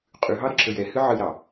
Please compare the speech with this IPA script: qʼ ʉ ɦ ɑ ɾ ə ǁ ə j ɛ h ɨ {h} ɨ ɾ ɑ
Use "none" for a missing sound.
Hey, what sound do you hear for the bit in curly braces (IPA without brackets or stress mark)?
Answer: ʕ